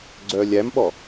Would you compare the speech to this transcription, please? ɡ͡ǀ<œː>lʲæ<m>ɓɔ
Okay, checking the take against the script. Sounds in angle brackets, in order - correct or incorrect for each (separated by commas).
correct, correct